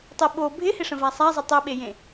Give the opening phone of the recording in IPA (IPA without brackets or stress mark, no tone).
tˤ